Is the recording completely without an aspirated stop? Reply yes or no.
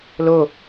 yes